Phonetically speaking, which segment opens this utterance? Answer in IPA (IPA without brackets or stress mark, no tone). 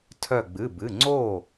tʰ